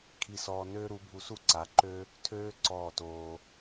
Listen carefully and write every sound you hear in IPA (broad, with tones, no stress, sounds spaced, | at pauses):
kʰ i˨ s ɔː˨ n øː˦ ɾ u˨˦ bʱ u˧ s u˦ ǀ a˨˦ ǃ ø˦ | tʰ øː˦ ǀ ɔː˦˨ t oː˧